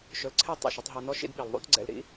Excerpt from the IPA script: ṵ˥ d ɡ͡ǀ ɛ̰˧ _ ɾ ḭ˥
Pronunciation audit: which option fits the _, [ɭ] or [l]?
l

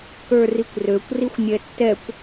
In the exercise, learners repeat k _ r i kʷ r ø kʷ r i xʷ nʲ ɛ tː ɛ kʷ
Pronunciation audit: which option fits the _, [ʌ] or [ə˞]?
ə˞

